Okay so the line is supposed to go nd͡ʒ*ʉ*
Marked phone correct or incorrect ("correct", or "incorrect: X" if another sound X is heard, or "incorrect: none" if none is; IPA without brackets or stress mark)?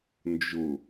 incorrect: ʊ